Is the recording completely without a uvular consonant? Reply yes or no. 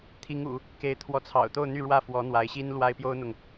yes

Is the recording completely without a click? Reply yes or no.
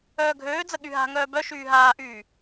yes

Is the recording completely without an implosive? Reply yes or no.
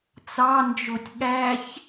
no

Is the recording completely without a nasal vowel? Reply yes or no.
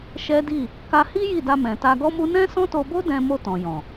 no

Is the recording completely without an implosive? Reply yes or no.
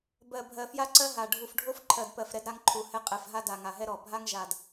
yes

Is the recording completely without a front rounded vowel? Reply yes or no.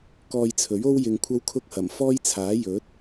yes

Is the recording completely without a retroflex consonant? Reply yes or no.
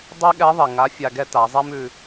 yes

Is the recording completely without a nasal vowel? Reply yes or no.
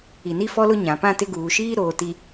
no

